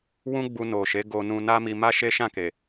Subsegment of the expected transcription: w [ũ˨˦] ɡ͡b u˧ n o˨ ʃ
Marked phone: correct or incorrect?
incorrect